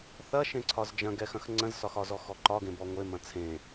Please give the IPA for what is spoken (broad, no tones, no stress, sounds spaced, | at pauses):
θ ɐ ʃ ẽ ǀʰ ɒ z d͡ʒ ɐ̃ ɡ ɛ x ɐ̃ x ŋ͡ǀ ə̃ z s ɒ x ɒ z ɔ x ɔ ǃ ɒ ɡ ẽ b ɔ ŋʷ e m ɐ̃ t͡sʰ ẽ